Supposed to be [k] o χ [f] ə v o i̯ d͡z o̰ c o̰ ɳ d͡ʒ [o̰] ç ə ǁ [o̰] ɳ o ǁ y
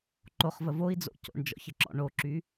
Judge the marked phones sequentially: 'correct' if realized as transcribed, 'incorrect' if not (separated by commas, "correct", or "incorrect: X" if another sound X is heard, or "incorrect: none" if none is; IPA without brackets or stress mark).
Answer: incorrect: ǃ, incorrect: v, incorrect: ɔ̰, incorrect: ɔ̰